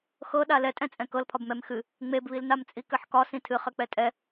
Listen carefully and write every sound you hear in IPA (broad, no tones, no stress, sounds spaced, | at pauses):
x ɤ ɗ a l ɛ tʼ ɛ̃ t͡sʼ ɛ̃ k ɤ l pʰ ɒ b m ɛ m x ɨ | ŋ͡m e b β i l n a m t͡sʼ i k ɘ ħ k ɒ s ĩ tʰ ɨ χ ɘ k͡p ɛ tʼ ɛ